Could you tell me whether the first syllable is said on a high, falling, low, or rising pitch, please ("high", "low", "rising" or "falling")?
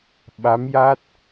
rising